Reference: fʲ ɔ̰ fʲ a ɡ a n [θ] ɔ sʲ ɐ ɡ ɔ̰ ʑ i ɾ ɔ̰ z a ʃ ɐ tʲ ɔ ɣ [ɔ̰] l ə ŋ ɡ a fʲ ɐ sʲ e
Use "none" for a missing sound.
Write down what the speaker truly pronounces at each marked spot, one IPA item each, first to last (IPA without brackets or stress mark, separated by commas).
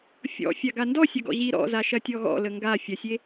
d, ɔ̰